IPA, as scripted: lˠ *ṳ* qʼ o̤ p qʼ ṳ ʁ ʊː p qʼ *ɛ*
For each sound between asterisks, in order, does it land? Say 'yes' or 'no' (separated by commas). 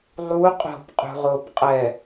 no, yes